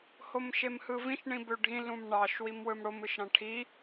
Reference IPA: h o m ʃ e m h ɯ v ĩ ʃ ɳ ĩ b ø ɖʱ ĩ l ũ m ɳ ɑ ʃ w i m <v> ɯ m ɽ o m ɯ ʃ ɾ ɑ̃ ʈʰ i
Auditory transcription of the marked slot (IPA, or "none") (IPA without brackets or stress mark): w